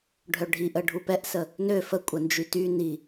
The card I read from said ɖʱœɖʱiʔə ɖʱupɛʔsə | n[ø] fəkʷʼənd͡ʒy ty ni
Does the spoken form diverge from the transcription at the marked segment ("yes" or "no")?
no